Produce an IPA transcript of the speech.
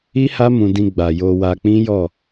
i˦ h a˦ m ũ˧ d ĩ˧ ɡ͡b a˨ j o˧ w a˧ k͡p ĩ˦ j ɔ˦˨

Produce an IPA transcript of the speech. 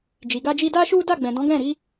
d͡ʒ i˨ ɡ a˧ d͡ʒ i˧ d a˦ ʃ u˦ d a˦˨ ɡ͡b ɛ̃˨ d ɔ̃˨˦ ɡ ɛ̃˦˨ ɾ i˨˦

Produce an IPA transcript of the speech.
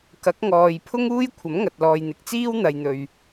k ɐ˨˥ k̚ ŋ ɔː˨ j pʰ ʊ˥ ŋ uː˥ j kʷʰ ɐ˨˥ m ŋ ɐ˨ t̚ l ɔː˨ j n̪ ɪ˨ k̚ t͡s iː˥ w n̪ ɐ˨ j n̪ ɵ˨ ɥ

